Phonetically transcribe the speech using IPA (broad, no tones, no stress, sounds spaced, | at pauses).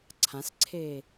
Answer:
ǀʰ ã s ǀʰ eː